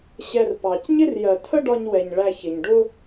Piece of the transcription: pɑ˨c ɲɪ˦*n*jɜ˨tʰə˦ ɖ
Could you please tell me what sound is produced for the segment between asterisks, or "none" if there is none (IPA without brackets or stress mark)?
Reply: r